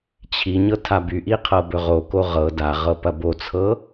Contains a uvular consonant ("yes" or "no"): yes